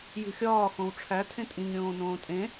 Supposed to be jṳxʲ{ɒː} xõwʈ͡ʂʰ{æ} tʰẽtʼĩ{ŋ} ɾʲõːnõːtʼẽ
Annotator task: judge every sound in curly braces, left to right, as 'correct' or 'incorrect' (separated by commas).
correct, correct, correct